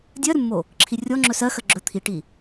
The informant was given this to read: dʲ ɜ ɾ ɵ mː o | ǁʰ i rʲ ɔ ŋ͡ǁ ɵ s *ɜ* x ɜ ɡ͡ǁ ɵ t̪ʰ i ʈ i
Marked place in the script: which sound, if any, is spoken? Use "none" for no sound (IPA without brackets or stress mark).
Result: ɜ